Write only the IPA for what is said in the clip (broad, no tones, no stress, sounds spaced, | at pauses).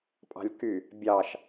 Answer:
pʼ ɑ̤ lʲ k y | bʲ ɑ ʃ